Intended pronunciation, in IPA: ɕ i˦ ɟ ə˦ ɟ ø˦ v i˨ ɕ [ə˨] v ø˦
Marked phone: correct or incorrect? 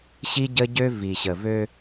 correct